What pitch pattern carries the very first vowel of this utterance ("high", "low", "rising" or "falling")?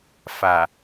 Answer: low